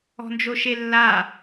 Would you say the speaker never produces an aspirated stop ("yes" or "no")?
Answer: yes